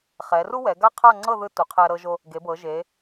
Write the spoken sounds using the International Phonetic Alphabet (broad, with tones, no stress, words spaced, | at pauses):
χɛ˩˧ru˥wɛ˩˧ ɡa˥qʰa˥˧ŋ͡ǀɤ˥˧ ðɯ˧ tu˩˧qʰɛ˧ ɾɤ˧ʒo˧ | ɡe˩˧bɤ˩˧ʒe˩˧